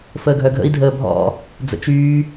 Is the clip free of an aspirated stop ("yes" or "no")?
yes